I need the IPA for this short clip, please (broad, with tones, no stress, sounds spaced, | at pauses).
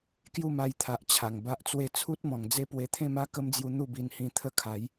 k j u˥˧ m a˧ j t̪ʰ a˨ ʔ t͡ɕʰ a˨˩ ŋ b a˦ ʔ t͡s w e˥˧ t͡sʰ u˦ t̚ m ɔ̃˨˩ ŋ d͡z e˦ p w e˧ t̪ʰ ẽ˥˧ m a˦ k ə˦ m d͡z j u˧ n̪ u˥˧ b i˧ n h ĩ˧ t̪ʰ ə˦ kʰ a˨˦ j